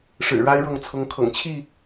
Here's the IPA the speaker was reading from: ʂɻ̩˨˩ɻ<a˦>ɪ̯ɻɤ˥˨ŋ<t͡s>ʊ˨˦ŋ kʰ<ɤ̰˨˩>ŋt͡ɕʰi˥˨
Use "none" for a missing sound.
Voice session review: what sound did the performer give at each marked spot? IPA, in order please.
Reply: a˦, t͡sʰ, ɤ̰˨˩

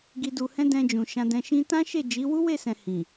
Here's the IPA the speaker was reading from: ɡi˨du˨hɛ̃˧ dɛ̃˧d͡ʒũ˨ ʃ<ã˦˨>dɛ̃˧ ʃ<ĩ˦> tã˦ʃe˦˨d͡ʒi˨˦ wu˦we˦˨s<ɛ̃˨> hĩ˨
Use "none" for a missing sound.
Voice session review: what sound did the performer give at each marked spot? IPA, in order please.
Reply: ã˧, ĩ˦, ɛ̃˨

